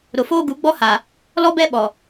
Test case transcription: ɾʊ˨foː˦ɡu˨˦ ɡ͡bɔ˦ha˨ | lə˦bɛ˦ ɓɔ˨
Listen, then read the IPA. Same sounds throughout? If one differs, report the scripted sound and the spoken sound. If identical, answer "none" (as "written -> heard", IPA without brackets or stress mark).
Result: ə˦ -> ɔ˦